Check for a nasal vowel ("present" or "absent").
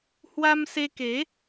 absent